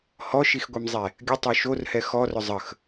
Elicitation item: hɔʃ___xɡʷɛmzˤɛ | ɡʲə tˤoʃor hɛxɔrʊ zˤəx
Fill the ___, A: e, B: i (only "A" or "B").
B